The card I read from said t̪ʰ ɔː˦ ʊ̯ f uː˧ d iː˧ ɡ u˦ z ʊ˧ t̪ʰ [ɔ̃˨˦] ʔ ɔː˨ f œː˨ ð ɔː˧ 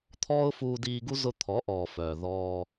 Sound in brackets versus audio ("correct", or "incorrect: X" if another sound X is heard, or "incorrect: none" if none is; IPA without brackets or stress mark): incorrect: ɔ˨˦